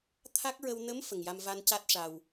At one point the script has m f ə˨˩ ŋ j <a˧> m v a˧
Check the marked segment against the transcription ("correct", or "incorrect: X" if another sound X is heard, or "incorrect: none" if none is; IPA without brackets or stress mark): correct